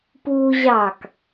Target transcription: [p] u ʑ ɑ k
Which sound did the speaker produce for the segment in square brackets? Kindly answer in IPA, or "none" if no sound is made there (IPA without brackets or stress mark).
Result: p